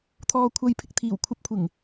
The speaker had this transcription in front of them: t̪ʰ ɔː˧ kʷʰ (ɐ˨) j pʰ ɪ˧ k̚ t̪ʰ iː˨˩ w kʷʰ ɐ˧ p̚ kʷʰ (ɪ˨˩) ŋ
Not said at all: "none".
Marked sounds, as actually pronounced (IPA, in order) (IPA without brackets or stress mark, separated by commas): ɐ˧, ɪ˨˩